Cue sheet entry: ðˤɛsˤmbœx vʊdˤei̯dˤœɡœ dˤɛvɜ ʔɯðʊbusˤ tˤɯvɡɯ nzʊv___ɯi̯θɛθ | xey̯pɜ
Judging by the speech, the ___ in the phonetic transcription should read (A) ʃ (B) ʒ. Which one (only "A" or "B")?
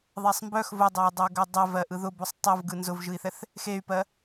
B